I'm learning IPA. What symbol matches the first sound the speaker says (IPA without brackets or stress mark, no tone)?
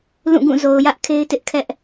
l